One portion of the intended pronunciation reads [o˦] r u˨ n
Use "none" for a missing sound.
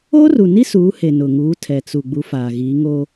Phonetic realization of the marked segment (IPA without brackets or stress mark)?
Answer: o˦